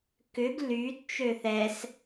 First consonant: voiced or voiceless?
voiceless